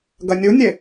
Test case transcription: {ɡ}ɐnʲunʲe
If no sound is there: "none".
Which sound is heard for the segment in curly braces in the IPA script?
ɡ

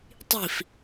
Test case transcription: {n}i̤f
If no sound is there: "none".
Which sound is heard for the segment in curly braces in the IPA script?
tˤ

